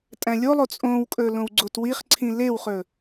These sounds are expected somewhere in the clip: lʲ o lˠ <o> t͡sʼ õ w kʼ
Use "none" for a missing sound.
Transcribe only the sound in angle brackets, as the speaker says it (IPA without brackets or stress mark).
o